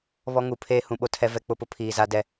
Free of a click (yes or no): yes